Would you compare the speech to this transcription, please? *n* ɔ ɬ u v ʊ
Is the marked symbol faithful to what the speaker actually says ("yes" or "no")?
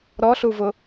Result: no